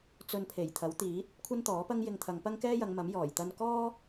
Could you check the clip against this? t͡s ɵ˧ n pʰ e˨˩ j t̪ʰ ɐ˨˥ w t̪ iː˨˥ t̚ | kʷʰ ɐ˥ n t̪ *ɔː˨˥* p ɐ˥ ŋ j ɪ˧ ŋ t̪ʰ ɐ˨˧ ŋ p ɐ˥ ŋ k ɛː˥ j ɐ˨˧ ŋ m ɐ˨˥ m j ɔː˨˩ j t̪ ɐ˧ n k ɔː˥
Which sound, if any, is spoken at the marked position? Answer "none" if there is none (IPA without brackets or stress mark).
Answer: ɔː˨˥